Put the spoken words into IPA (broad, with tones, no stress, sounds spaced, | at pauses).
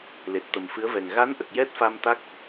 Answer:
l e˨˩ t̚ t̪ ə˨˩ m f ɨ˧˥ ə̯ v ɛ˨˩ ŋ ɣ a˧˥ n ʔ ə˨˩ k̚ j ɛ˦˥ t̚ f a˧ m t̪ a˦˥ k̚